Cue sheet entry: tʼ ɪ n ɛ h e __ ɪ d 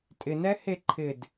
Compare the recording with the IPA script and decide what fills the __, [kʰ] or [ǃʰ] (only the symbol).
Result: ǃʰ